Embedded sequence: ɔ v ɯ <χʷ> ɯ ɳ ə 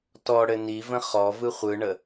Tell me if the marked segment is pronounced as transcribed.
yes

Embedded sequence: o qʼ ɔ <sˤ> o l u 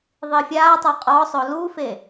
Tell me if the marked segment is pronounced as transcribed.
yes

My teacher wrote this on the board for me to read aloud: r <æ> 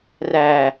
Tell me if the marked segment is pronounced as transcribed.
yes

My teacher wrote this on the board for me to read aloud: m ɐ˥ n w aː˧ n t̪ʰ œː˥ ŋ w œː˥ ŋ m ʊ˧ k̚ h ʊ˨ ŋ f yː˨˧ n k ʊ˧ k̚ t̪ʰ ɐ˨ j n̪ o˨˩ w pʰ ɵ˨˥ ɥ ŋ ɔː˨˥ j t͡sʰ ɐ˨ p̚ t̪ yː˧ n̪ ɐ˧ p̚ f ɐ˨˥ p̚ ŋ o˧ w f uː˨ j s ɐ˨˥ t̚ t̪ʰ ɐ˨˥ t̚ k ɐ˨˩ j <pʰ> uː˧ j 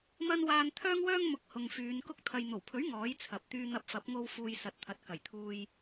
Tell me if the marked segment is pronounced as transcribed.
no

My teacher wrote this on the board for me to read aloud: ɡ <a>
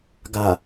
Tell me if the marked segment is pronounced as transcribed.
yes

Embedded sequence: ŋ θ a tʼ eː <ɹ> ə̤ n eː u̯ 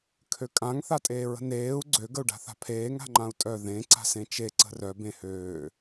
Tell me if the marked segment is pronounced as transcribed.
yes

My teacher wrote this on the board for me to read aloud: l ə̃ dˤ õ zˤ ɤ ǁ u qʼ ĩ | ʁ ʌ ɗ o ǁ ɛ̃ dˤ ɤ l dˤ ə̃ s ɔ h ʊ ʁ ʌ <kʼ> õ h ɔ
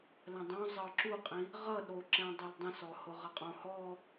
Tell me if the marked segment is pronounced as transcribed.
no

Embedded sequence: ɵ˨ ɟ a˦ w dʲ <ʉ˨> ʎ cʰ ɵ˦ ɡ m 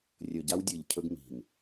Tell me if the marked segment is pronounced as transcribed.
no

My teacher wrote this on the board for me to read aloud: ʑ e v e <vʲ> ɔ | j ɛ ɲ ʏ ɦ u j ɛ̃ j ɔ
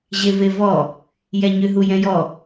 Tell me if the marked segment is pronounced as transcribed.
no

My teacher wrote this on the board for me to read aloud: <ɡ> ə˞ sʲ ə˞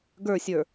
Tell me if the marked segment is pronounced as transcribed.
yes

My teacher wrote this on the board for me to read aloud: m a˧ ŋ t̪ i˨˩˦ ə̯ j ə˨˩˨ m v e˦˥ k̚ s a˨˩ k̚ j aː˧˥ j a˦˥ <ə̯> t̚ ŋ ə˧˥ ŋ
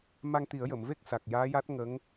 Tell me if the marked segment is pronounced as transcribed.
no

